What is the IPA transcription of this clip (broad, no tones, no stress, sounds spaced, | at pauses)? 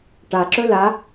ʈ a ǁ ɵ l a